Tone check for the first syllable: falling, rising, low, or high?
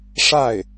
falling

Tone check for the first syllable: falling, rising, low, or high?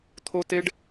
high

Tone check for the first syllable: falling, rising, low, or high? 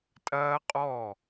high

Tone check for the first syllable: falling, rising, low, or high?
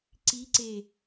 rising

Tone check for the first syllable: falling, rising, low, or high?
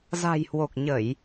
low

